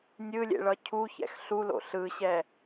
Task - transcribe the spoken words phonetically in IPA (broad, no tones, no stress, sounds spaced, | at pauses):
nʲ ɯ lʲ ḛ ɭ ʌ cʰ u ç ɛ̰ x ɬ u l o̰ ɬ ɯ ɕ ɛ